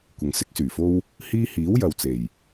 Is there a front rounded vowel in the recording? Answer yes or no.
yes